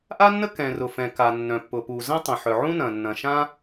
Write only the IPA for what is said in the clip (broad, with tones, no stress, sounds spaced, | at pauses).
ʔ a˥ nː ə˥ k ɛ̃˩ r ʊ˩ f ɛ̃˩ k a˩ nː œ̃˩ pː ʊ˩ p u˩ z ə̃˥ tˤ ə̃˩ ħ œ˩ ʕ ũ˥ n ɐ̃˩ nː ɐ̃˩ ʃ ã˥